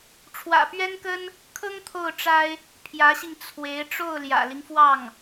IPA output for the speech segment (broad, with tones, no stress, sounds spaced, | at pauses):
ʈ͡ʂʰ w ä̰˨˩ p ɥ ɛ˥ n k ə˥ n | kʰ ɤ˥ ŋ t̪ʰ o˥˩ ʊ̯ ʈ͡ʂ a˥ ɪ̯ | pʰ j ä˧˥ ɕ i˧ ŋ t͡sʰ w e˧˥ ɪ̯ ʈ͡ʂ o˥˩ ʊ̯ l j ä̰˨˩ l i˦ ŋ f w ɑ˥˩ ŋ